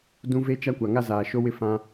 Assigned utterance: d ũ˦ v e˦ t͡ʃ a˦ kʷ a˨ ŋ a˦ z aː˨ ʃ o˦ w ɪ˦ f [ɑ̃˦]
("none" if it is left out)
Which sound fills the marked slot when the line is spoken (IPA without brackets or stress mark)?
ã˦